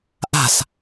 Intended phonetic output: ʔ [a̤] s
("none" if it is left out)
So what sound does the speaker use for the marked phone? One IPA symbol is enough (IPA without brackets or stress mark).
a̤